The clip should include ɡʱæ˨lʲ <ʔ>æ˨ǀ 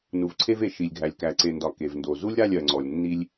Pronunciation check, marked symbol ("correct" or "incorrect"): incorrect